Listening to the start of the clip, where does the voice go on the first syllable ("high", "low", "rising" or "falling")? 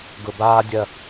low